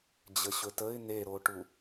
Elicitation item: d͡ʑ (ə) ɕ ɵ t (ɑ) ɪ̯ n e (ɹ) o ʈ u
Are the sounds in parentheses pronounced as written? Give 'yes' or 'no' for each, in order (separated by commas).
yes, no, no